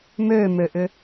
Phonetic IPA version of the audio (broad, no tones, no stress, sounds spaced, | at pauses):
m ø m ø ʔ ʏ